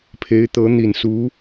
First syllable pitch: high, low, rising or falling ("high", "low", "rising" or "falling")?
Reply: rising